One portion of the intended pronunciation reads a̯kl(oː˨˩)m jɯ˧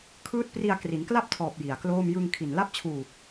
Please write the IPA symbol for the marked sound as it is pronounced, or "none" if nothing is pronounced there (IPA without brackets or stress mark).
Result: oː˥˩